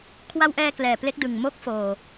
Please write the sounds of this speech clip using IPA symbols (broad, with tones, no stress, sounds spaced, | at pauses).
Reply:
kʰ w a˧ w ʔ ɛː˧ k l ɛː˨˩ p l e˦˥ k̚ d ɯ˨˩ ŋ m o˦˥ k̚ f oː˨˩